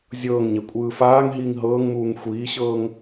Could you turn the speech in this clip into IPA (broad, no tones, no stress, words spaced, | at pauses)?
zʲɤːŋɲɛ kʷʼɯːfaːŋɦiːŋ ɦɤːŋmuːŋ xʷiːɕɤːŋ